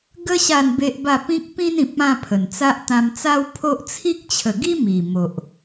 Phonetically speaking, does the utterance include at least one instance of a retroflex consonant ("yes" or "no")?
no